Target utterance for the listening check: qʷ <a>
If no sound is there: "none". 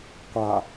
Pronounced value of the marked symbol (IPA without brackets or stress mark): a